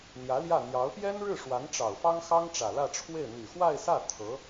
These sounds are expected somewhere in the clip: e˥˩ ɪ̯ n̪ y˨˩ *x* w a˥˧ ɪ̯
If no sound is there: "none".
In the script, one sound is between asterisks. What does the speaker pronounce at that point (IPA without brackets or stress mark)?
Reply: x